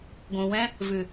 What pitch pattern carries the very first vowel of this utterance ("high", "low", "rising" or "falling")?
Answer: low